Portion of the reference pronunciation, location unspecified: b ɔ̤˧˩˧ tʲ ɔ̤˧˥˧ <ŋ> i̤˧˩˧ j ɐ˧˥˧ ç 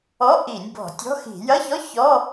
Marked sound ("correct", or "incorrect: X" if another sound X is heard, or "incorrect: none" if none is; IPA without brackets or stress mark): incorrect: x